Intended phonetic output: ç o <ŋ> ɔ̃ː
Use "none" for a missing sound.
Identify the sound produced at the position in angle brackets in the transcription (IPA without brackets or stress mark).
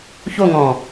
ŋ